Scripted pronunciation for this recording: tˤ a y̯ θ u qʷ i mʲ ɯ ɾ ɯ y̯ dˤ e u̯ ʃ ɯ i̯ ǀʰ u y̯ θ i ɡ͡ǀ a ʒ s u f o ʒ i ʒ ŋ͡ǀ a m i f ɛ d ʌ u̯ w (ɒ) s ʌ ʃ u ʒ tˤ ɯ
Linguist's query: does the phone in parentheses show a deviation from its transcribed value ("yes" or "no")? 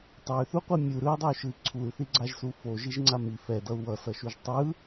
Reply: yes